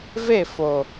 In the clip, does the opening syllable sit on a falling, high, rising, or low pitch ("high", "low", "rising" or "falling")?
falling